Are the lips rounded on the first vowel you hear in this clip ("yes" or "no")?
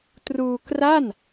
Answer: yes